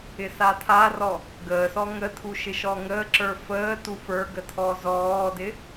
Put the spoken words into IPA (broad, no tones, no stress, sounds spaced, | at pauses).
ɪ s a tʰ a r ɔ | ɡ əː s ɔ ŋ ə tʰ u ʃ ɪ ʃ ɔ ŋ əː ǁ ə˞ f əː t u f ə˞ ɡ ə tʰ ɔ z ɔː d ɪ